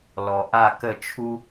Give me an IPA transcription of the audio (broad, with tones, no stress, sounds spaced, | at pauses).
l ɔ˧ ʔ a˥˧ k ə˥˧ t͡ʃʰ u˥